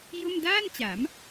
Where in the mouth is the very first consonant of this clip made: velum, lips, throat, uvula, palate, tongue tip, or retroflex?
palate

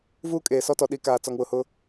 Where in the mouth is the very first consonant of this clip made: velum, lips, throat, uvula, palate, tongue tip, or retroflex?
lips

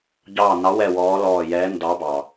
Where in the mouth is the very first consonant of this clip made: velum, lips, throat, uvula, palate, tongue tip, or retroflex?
palate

